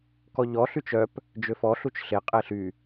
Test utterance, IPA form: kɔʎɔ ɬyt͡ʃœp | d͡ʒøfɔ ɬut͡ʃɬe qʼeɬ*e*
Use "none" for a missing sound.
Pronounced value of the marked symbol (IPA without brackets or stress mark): y